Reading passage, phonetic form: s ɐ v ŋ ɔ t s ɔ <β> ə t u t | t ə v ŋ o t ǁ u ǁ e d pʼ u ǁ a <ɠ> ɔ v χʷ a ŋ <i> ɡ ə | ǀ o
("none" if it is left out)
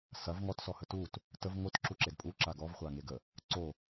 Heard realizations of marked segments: h, ɡ, e

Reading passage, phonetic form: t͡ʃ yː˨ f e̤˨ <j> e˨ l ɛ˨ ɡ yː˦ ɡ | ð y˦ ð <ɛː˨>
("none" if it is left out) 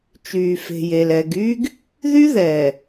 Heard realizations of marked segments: j, ɛː˨

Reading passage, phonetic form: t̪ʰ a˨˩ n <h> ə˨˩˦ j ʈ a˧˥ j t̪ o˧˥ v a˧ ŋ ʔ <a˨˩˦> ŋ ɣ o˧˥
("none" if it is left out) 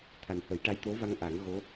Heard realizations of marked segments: h, a˨˩˦

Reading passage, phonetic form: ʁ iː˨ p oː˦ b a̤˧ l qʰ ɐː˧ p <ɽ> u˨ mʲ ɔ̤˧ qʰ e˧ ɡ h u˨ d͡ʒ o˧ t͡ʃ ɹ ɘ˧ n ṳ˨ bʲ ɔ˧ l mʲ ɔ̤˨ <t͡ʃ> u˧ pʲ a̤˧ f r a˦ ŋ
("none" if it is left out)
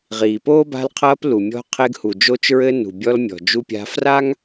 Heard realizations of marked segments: l, d͡ʒ

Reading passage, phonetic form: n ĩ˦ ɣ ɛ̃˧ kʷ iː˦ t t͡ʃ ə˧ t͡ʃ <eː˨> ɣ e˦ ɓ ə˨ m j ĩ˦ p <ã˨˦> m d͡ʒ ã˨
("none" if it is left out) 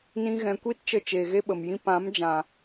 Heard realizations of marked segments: eː˨, ã˨˦

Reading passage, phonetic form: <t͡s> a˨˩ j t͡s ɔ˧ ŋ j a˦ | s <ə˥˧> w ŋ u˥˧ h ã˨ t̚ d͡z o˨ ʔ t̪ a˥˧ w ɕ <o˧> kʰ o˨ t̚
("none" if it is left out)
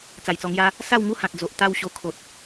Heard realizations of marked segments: t͡s, a˥˧, o˧

